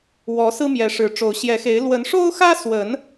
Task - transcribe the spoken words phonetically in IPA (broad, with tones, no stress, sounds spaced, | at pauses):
w ɔ˨˦ s ɹ̩˦ m j ɛ˨˦ ʂ ɻ̩˨˦ ʈ͡ʂ o˨˦ ʊ̯ ɕ j ɛ˨˦ x e˨˦ ɪ̯ l w ə˨˦ n ʂ o˦ ʊ̯ x ä˦ s w ə˨˦ n